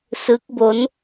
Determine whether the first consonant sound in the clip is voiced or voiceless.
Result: voiceless